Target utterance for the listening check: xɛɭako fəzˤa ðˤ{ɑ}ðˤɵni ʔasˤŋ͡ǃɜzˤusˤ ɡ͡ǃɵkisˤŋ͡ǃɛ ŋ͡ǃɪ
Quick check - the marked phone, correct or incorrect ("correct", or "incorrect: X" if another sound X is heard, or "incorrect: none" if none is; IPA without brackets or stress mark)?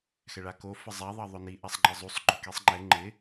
correct